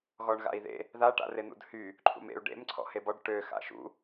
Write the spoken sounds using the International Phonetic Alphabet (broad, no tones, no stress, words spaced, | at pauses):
ɣɔɳɣa̰i̯ðḛ | ða ʈa̰ren̪ṵdhy | ǃʰṵmḛu̯ ɖḛm ǀʰɔ̰hebɔɖ ʈø xa̰ʃṵ